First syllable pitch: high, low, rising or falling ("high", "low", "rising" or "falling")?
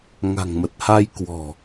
low